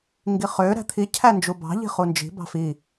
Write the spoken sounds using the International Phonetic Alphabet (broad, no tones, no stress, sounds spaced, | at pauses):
ŋ ɡ i χ ø ɾ æ̤ t̪ʰ i cʰ æ n d͡ʒ u b ɑ̤ ʎ i̤ χ u n d͡ʒ i̤ b ɑ̤ f i